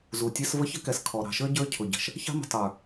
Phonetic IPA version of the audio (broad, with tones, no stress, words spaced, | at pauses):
zu˨tʲɛ˦s və˦ çə˦kɛ˨s kʰɔ˨ ɾɑ̤˨ʃə˞˦ ɟə˞˦ cʰʊ˨ɟə̤˨ʃ | çɑ̤˦mə̤˨ tˤə˞˨